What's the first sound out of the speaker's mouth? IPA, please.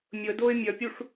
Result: mʲ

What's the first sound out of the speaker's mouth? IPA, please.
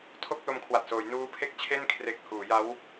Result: tʰ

